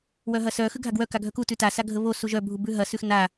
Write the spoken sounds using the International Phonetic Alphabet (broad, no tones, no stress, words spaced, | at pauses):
wœɦɐsœ xʉɡʱaɡwœ kaɡʱœku tʉta saɡʱəβo suʒœ bʱubʉɦɐ sʉxna